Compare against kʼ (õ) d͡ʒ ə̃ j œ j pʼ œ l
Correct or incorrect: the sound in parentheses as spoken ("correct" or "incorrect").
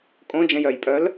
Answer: correct